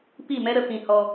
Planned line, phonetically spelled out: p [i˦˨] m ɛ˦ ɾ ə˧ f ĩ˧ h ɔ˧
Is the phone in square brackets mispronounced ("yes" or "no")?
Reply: no